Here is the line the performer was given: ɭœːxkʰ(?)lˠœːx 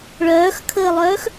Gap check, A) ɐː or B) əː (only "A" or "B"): B